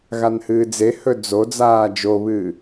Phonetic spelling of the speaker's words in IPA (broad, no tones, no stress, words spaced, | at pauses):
ɣanhɨːd͡zehɵ d͡zod͡zaː d͡ʒoβɨː